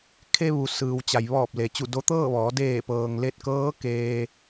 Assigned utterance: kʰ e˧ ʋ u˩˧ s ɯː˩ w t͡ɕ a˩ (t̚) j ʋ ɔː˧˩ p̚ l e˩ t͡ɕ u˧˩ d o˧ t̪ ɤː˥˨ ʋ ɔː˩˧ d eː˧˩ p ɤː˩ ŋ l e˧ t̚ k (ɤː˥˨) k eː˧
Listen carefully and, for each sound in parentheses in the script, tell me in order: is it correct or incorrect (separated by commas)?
incorrect, incorrect